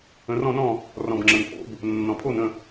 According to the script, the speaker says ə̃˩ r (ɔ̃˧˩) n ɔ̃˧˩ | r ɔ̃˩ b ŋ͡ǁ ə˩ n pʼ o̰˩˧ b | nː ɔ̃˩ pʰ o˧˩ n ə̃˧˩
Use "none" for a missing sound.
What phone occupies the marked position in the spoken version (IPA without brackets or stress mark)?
ɔ̃˧˩